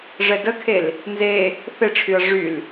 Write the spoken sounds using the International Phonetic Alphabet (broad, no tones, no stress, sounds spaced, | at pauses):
ʐ ɛ d ə kʰ e l | n z e | θ e ʈ͡ʂʰ y ɐ̯ ʐ y l